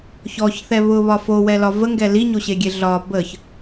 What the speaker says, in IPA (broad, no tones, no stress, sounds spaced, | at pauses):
ç ɔ ç θ ɛ β ʊ β ɒ f o w ɛ l ɒ v ə ŋ ɡ ɛ l i ɲ o ɕ e ɡʲ e ɮ ɒ b ə ç